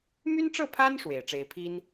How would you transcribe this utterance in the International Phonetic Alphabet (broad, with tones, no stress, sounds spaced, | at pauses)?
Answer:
m y˥ n ʈ͡ʂ ɤ˥˩ pʰ a˥ n ʂ w e˨˩ ɪ̯ ʈ͡ʂ e˥ ɪ̯ pʰ i˥ n